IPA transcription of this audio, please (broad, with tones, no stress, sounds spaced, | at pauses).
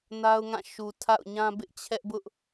n a˦ ʊ̯ ŋ ã˦˨ ʃ u˨ tʰ a̰˦˨ ʊ̯ ɲ ã˦ b ɪ˦ ʔ t͡ɕʰ ɛ˦ ʔ b ʊ˦ ʔ